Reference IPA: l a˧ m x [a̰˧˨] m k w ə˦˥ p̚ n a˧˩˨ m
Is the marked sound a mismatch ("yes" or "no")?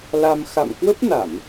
no